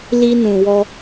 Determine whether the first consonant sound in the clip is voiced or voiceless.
voiced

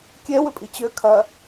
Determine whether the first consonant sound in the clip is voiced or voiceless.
voiceless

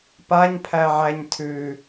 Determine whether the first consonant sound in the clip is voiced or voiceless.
voiceless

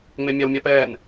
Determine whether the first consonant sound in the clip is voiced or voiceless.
voiced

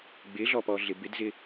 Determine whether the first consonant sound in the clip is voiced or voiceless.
voiced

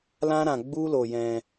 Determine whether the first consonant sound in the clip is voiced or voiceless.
voiced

